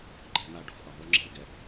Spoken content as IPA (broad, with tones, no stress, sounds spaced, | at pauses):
ǃ ɛ̤˥˧ n̪ a˥˧ ɖ ɔ̤˧ x ʔ ɐ˨˩ ðˤ u˧ ŋ͡ǁ ɛ̤˥˧ l ɡ ɛ˧